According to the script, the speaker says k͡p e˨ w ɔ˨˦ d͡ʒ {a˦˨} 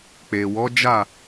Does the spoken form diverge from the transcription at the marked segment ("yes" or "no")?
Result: no